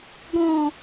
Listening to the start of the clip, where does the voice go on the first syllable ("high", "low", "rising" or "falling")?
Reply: low